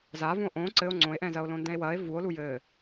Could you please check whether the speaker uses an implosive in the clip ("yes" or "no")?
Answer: no